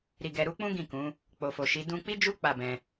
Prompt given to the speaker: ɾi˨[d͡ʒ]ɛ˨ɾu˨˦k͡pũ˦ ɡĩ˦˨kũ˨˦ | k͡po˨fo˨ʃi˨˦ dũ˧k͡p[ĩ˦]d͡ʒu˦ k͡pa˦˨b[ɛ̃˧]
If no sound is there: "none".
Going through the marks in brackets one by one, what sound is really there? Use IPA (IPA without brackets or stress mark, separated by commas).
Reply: ɡ, i˦, ɛ̃˧